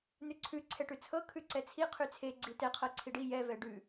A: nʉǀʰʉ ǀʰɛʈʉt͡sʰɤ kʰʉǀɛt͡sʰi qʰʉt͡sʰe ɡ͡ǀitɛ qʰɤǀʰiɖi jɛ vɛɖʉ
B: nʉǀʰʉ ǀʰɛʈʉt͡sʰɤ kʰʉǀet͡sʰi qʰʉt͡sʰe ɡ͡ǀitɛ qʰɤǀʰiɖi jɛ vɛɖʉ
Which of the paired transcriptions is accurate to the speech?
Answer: A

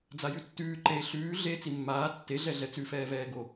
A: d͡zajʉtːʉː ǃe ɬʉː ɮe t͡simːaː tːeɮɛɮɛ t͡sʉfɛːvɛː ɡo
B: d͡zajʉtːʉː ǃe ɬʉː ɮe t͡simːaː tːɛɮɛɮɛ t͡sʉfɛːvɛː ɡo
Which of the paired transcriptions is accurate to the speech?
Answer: A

